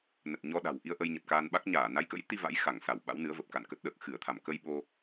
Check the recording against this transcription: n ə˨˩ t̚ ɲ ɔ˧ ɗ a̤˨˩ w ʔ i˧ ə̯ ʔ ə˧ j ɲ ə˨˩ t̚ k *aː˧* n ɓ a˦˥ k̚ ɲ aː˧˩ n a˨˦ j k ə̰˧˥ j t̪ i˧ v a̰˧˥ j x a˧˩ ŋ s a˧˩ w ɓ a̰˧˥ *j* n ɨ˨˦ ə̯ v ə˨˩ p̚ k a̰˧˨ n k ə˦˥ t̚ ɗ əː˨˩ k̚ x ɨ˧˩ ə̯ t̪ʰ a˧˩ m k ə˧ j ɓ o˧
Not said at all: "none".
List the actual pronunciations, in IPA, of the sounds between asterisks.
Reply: aː˧, w

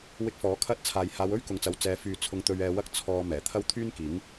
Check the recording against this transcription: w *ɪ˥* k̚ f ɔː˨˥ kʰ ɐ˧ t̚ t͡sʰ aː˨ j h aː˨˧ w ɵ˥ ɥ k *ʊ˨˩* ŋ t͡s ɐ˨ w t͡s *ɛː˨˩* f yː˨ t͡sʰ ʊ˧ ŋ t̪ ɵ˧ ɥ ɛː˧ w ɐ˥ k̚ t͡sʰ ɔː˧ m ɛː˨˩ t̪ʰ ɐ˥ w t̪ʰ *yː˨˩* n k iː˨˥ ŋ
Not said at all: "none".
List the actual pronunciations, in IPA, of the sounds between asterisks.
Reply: ɪ˧, ʊ˨, ɛː˨˥, yː˥

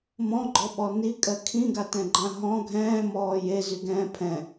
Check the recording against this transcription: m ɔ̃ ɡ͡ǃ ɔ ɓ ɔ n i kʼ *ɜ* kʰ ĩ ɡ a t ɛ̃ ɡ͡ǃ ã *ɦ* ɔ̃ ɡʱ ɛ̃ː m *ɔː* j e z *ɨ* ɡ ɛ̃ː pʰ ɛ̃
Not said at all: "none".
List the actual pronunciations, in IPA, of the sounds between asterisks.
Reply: ɜ, ɦ, ɔː, y

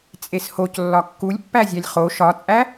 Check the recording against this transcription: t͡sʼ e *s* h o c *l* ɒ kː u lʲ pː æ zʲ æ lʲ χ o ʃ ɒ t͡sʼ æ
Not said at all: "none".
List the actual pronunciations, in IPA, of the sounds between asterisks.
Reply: s, lː

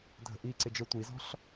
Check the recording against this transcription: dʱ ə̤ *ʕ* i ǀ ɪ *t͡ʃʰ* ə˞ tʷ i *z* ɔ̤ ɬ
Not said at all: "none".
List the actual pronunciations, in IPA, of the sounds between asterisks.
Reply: ʔ, d͡ʒ, z

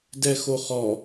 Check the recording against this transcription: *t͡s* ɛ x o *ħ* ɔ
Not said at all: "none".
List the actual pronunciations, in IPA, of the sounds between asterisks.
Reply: d, χ

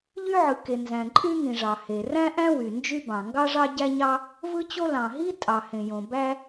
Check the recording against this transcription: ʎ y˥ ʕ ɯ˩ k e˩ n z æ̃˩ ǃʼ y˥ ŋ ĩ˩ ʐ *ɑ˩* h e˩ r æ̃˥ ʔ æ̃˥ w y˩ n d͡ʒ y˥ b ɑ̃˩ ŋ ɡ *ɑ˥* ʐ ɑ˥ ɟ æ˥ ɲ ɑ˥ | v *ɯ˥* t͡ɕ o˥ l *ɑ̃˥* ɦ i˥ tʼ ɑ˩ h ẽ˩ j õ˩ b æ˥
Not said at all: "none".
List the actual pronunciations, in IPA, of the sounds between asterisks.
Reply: ɑ˩, ɑ˥, ɯ˥, ɑ̃˩

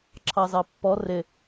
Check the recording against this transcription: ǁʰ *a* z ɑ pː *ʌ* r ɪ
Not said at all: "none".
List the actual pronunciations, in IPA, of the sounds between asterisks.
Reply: ɑ, ɔ

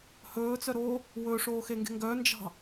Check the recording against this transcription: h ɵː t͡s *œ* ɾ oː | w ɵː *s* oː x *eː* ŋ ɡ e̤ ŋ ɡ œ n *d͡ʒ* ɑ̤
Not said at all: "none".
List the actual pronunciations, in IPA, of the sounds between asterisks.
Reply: œ, ʂ, e, d͡ʒ

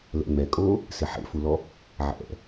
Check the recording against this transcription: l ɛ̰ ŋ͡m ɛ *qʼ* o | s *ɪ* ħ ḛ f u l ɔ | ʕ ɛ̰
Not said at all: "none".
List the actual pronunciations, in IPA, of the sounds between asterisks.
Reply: kʼ, ɪ

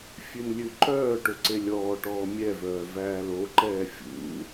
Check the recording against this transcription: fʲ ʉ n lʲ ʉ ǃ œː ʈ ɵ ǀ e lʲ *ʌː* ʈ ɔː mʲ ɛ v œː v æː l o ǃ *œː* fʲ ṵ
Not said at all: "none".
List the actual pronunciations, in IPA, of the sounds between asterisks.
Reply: ɔː, ɛː

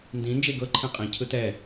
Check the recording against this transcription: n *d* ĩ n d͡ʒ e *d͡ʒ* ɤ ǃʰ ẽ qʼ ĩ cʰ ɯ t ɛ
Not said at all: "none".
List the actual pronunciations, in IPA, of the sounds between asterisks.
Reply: d, ɡ

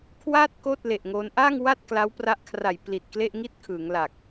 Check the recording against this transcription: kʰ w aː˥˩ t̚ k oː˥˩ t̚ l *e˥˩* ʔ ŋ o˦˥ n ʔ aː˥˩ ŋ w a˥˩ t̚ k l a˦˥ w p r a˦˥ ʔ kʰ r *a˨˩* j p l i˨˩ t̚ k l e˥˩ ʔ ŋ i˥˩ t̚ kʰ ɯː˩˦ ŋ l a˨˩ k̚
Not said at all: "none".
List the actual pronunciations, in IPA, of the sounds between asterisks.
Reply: e˨˩, a˨˩

